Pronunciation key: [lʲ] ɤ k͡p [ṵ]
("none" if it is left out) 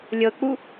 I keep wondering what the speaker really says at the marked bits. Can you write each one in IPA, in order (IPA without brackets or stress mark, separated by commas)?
lʲ, u